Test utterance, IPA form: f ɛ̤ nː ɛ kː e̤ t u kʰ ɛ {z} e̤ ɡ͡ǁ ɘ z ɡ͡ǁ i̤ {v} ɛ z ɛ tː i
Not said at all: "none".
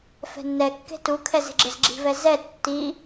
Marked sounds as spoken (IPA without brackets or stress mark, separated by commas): z, v